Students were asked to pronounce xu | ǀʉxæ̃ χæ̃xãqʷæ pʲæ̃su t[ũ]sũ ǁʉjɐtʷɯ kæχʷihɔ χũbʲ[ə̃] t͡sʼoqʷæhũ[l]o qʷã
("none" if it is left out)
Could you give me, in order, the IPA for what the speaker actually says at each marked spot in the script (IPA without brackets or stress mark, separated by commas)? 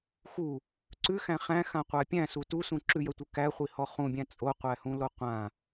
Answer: u, æ̃, l